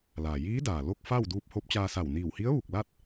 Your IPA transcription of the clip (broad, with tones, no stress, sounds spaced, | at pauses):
l a˩ j iː˧˥ d aː˩ l o˥˨ k̚ f aː˥˨ w d uː˧ p̚ h o˧˥ p̚ t͡ɕ aː˧ s a˧˩ w n iː˧˩ w h i˧˥ ə̯ ʋ u˧˩ k̚ l a˥˨ t̚